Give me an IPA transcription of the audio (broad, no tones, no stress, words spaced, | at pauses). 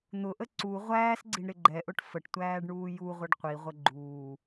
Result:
n̪ʊʔə ǀu ʁʷæːsɡ͡ǀiɳ ɾɪɡ͡ǃɛʔʊʈ fəʈtʷæːɖ ɳuːjuʁʷɪɖ qʷiʁʷə ɡ͡ǃuː